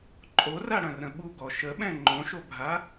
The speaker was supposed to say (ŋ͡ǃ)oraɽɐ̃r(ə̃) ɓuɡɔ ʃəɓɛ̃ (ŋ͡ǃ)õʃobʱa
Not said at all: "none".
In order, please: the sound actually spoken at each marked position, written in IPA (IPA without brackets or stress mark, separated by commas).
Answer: ǃʼ, ə̃, ŋ͡ǃ